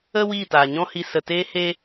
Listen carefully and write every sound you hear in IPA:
ə˦ w iː˦˨ t aː˨ ɲ ɔ̃˦ h i˧ s ə˨ t eː˦ h e˦

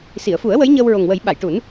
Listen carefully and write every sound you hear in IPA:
s i˨˩˨ ə̯ f u˨˩˦ ə̯ w ə˧˥ j ɲ əː˧ w ɹ o˨˩ ŋ w ə˨˩˦ j ɓ a˨˩˨ j ʈ u˨˩˦ n

